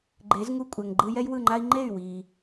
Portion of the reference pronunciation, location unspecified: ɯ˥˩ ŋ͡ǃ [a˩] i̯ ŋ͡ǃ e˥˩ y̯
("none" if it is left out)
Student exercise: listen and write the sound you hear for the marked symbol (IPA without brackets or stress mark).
a˥